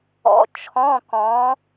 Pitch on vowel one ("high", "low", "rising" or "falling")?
rising